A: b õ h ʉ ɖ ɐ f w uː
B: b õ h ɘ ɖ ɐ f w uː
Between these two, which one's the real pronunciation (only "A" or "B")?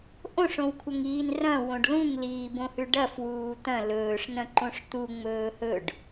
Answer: A